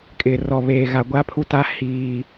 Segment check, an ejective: present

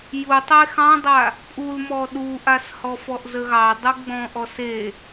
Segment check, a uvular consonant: absent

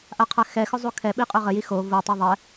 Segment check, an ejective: present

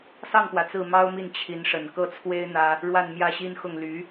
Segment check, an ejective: absent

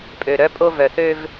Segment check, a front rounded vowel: present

